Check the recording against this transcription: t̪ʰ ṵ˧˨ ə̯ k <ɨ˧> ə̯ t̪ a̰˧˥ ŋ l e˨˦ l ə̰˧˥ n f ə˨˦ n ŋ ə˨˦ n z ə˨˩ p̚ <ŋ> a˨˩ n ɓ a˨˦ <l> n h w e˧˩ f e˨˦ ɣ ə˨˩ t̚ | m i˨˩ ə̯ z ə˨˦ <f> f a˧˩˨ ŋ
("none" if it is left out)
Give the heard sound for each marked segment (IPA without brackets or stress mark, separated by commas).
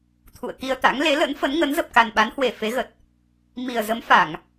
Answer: i˧, k, none, m